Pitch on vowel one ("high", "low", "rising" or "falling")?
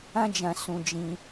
high